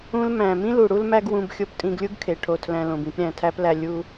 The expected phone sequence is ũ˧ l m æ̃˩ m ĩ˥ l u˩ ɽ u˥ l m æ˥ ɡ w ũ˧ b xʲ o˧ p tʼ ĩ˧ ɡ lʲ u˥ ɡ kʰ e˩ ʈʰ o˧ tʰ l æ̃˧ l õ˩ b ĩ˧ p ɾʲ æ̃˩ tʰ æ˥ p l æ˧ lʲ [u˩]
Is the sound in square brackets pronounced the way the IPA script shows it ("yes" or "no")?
no